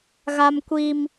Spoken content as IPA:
ɣ a˦ m kʷ i˦ m

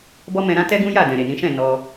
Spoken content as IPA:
b ɔ˦ m ɛ̃˧ ɾ ã˦ t ɛ˦ ɡ ũ˦ j a˦˨ d ɛ̃˨ ɾ e˨ n ĩ˨˦ ʃ ɛ̃˦˨ n ɔ˧

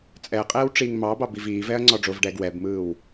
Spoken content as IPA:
t͡sʼ ɛ ɐ̯ qʼ ɛː w ʈ͡ʂ iː ŋ m ɑ b ɑ b i v iː v ɛ ɐ̯ ŋ͡ǀ ɔ ɖ͡ʐ o v ɖ ɛː ɡ w ɛ b m ɯː w

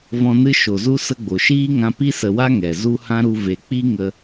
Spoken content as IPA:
v ɔ̃˧ n ɨ˦ ʃ o˨ z u˦ s ə˧ ɡ͡b o˨ ʃ iː˦ ŋ ã˧ p i˦ s ə˨ w a˦ ŋ ɛ˨ z u˦ h ã˦ ɾ u˧ v e˨ k͡p i˦ ŋ ə˧

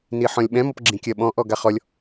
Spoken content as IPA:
n i ħ ɔ̃ lʲ ɓ ɛ̃ m ɔ p ɡ͡ǁ ĩ kʲ ɜ ɓ ɔ̃ ʔ ɔ ɡ a χ ɔ lʲ

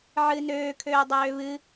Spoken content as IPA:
ʕ ɨ n øː kʰ øː dˤ øː β ɨ

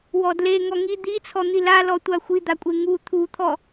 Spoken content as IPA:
w ɔ d l e ŋ ɔ ŋ i d̪ i t͡sʰ ɔ n̪ i l a l ɔ tʷ a xʷ i d̪ a kʷʼ e ŋ u t̪ʰ u t̪ʰ ɔ

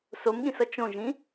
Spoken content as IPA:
s o m ɠ ĩ s ʌ t͡ʃ õ ʒ ĩ

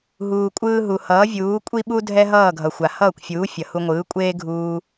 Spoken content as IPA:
ɦ uː˩ kʷʼ ɯː˧ ɦ u˩ h ʌː˩˥ vʲ uː˩˥ kʷʼ i˥ ɓ u˥ dʱ ɛ˥ ɦ ʌː˥˩ ɡʱ ʌ˩ xʷ a˩ h ʌː˥˩ kʷ fʲ uː˩˥ fʲ ʌ˩ h u˧ ŋʷ ɯː˩˥ kʷʼ eː˥ ɡʱ uː˧

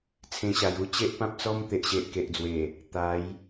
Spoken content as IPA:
t͡sʰ ẽ˧ ɕ a˨˩ j u˦ t͡ɕ e˦ ʔ p ã˦ p̚ t͡s ɔ˦ m t̪ e˨ ʔ ɕ e˨ ʔ k e˨ ʔ d͡z w e˨˩ | t̪ a˨˦ j

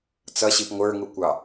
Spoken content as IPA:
t͡s ʌ ɕ i p ŋʷ ə˞ ŋ u kʷ ɑ

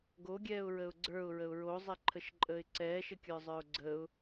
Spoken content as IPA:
ɡ o ɡʲ ɛː ʊ̯ ɹ ə ʊ̯ ɡ͡ǀ ə˞ ʊ̯ ɹ ə ʊ̯ ɹ o zˤ ɛ ǃʰ ə ʃ ǃʼ əː ɪ̯ ǀ ɛː ʃ ə kʲ ə˞ zˤ ə˞ ʊ̯ ɡ͡ǀ ə ʊ̯

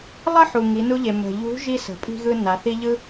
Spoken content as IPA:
lˠ ə˥ ħ u˩ ŋ i˩˧ n u˧ ʎ e˩ m ə̤˩ ʎ ṳ˧˥ ʒ i˥ s ə̤˩˧ pʼ i̤˥ ɣ ɯ˥ n a˩˧ θ i˥ ʎ ɯ˥

